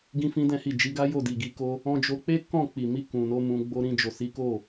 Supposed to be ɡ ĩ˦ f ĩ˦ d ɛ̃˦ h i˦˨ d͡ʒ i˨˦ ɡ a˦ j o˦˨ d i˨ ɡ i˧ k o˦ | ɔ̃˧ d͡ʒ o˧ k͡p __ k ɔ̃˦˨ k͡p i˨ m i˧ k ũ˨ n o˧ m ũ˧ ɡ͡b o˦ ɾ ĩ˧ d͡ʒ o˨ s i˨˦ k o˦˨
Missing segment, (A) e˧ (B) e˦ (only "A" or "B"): B